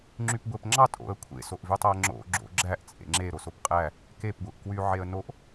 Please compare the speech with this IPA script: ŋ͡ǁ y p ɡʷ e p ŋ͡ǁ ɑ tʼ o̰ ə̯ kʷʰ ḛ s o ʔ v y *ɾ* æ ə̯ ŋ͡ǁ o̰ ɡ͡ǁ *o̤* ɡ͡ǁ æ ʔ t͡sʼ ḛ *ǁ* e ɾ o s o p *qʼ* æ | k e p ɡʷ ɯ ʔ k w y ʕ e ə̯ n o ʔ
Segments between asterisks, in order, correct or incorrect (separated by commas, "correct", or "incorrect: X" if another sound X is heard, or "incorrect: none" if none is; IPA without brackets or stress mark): incorrect: tˤ, incorrect: o̰, incorrect: ŋ͡ǁ, correct